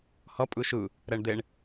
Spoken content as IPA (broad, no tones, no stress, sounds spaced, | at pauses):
h ʌ pʼ ɯ ʃ ɯ | ɾ ɛ ɳ d̪ e ɳ